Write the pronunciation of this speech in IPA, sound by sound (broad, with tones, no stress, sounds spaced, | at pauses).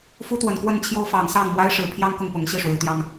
f u˦ t̪ w ə˨˩ n k w ə˥˨ n t͡ɕʰ j o˦ ʊ̯ f ɑ˨˩ ŋ s ɑ˥˨ ŋ m w a˦ ɪ̯ ʂ ɻ̩˨˩ pʰ j ɑ˦ ŋ k ʊ˥˨ ŋ p ʊ˨˦ ŋ ɕ i˥˨ ʂ w e˨˦ ɪ̯ t̪ j ɑ˦ ŋ